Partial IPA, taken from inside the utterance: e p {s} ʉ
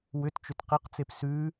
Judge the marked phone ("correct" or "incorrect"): correct